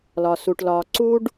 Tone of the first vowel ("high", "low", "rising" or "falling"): low